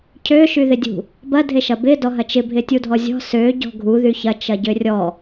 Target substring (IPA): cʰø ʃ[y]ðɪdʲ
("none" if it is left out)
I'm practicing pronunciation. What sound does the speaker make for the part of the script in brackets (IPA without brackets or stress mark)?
y